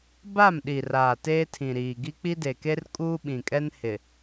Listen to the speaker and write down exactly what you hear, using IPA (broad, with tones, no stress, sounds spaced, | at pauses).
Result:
b a˦˨ m ɗ i˨ r aː˨ t eː˦ tʰ ĩ˨ ɾ iː˨ ɡ i˦ k͡p i˦ d e˨ k e˦ r kʼ uː˦ ɓ ĩ˨ kʼ ɛ˦ n h ɪ˨